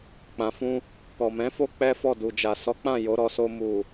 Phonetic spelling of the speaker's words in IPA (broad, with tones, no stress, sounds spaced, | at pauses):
k͡p ã˨ f ũ˧ | k ɔ˨ m ɛ̃˨˦ f o˦ k͡p ɛ˦ f ɔ˦˨ d u˨ d͡ʒ a˨ s ɔ˨˦ k͡p ã˦˨ j o˨˦ ɾ ɔ˧ s o˧ m u˨